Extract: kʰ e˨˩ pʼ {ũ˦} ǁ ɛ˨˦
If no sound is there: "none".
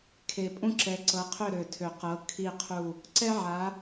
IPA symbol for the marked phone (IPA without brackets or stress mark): ũ˦